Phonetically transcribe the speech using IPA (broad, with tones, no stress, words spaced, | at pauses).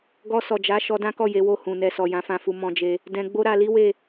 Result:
ɡɔ˧sɔ˨d͡ʒa˨˦ ʃɔ˧dã˦kɔ˦˨ je˨˦wo˦˨ hũ˨nɛ˨sɔ˨ jã˨˦fã˦˨fu˧ mɔ̃˧d͡ʒe˧ | dɛ̃˧ ɡ͡bo˦ɾa˧li˦we˦˨